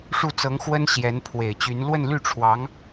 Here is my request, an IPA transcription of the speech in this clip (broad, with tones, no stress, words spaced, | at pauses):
ʂu˥˩t͡sɤ˧˥ŋxwə˥n ɕjɛ˧˥n pʰwe˨˩ɪ̯t͡ɕy˧˥n lwə˥˧nly˥˩ʈ͡ʂʰwɑ˧˥ŋ